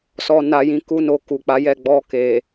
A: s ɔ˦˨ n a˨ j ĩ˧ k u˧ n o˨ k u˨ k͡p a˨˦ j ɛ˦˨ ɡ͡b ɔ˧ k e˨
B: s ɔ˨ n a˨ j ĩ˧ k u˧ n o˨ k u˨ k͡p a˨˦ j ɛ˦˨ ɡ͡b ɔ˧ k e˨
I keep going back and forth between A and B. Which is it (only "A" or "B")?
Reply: B